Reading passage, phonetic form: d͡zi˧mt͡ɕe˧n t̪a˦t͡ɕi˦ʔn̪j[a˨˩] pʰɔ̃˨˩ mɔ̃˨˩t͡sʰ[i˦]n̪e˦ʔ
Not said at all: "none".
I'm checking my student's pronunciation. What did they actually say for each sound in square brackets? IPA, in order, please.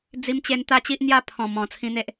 a˥˧, ĩ˦

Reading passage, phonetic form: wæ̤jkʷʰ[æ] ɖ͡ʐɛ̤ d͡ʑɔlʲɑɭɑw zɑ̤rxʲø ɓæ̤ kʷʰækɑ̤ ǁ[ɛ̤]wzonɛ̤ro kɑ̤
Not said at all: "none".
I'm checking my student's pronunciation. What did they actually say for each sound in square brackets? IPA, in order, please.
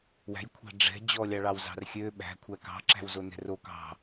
æ̤, æ̤

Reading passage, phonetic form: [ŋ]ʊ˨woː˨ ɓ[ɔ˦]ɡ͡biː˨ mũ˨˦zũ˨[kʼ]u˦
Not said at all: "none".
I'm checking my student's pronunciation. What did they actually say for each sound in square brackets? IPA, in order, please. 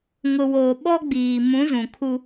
ŋ, ɔ˦, kʰ

